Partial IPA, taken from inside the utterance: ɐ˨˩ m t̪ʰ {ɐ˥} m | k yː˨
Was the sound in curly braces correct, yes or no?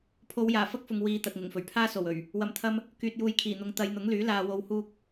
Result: no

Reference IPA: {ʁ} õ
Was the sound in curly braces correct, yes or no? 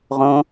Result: yes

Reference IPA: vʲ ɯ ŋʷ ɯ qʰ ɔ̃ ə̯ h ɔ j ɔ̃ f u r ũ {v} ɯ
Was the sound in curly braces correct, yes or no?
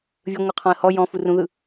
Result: no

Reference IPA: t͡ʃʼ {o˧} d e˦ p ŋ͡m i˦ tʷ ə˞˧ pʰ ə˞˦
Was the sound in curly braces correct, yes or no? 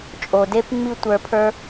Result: no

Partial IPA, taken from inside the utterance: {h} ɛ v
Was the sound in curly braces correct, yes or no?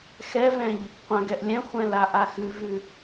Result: no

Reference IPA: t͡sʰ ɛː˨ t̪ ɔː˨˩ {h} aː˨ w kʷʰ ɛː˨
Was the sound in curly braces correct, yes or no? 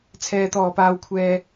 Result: no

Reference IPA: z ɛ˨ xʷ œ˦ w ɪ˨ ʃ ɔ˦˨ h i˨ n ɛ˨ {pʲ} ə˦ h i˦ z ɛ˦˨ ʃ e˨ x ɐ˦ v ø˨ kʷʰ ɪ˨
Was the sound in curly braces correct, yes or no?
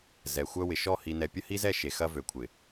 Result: yes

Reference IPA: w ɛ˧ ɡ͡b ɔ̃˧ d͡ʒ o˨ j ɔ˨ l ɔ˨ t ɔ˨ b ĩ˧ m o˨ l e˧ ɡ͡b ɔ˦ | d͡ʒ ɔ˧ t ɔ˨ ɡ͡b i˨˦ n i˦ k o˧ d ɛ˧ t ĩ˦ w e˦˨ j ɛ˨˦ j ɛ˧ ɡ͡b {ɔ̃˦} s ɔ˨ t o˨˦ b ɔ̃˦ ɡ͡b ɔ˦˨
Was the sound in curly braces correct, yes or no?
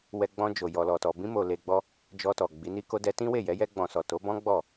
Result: no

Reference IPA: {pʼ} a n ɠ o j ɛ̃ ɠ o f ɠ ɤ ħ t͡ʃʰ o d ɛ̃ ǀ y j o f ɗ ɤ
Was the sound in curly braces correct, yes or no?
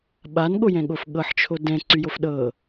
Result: no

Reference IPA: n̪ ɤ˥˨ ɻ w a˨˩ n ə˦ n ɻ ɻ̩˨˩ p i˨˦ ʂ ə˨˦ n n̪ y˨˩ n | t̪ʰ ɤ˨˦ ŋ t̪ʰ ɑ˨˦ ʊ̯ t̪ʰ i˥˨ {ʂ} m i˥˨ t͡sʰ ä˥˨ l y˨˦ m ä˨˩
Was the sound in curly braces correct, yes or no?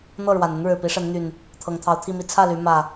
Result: no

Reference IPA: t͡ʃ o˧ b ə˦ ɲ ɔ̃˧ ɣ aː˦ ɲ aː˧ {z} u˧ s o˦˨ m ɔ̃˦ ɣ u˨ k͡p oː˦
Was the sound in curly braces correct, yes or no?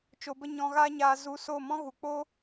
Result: yes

